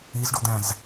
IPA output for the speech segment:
izɖod̪æ̃z

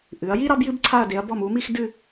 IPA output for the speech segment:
ʔɨ˩˧ɐ̯ji˥ ɾɑ˥bjɨ˥bǀʰa˥˧ɐ̯ de˩˧ɐ̯bɔ˧˩mu˩˧ mi˥˧xdɨ˥˧

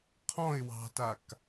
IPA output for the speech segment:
qʰɔ̃ɪ̯ wɑ̤tak

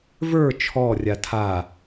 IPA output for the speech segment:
və˞ t͡ʃʰɔrʲa tʰa

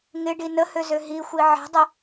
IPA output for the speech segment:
ŋɪɖi nəhøzø ɦixʷi ʕɛ̤dˤɪ

